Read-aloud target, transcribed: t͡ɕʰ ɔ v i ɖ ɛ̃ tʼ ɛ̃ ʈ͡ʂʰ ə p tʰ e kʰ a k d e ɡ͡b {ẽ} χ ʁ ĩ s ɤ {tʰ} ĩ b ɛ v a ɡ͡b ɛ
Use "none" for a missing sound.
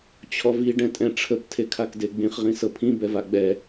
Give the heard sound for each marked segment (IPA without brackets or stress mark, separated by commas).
ĩ, pʰ